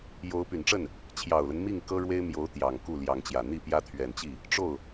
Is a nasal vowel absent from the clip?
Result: yes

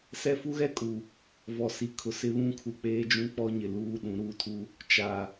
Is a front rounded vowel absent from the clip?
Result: yes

